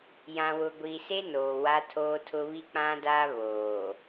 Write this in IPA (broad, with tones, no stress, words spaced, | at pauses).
jã˨wʊ˨ɡʷiː˨se˦ noː˨wa˦tʰoː˦tʰʊ˦ βi˦k͡pã˦daː˦ βoː˨